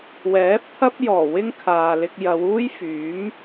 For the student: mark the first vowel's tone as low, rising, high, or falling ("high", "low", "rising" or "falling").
rising